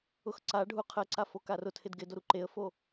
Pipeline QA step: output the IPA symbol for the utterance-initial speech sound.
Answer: ʊ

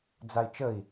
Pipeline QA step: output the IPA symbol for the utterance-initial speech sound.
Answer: d͡z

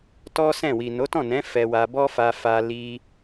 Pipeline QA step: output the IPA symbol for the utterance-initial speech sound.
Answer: t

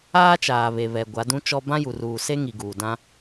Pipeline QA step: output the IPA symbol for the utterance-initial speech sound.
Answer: aː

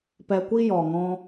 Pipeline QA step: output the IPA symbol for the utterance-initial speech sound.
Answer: p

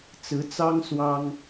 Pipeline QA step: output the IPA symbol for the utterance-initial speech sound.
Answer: t͡s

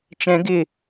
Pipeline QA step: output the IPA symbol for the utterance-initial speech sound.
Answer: t͡ʃ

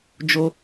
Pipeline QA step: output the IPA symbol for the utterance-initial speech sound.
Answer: d͡ʒ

